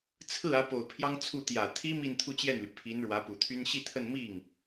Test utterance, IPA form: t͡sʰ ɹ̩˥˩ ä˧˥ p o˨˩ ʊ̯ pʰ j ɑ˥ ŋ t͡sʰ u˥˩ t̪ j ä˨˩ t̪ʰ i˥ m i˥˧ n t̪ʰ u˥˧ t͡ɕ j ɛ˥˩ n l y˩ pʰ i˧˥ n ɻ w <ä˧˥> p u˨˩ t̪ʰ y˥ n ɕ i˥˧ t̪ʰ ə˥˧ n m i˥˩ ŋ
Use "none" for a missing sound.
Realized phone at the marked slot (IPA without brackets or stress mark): ä˧˥